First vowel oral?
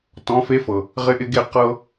no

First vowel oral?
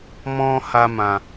no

